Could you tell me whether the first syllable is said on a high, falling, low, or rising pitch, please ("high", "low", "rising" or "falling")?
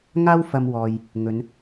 high